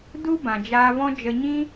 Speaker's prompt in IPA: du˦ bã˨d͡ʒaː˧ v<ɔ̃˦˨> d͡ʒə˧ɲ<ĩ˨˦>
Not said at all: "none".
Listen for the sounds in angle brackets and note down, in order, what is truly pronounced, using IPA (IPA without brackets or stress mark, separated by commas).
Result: ɔ̃˦, ĩ˦